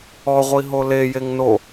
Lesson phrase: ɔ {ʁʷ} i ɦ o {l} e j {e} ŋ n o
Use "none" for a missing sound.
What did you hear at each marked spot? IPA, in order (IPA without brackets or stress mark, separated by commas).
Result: ʁʷ, l, e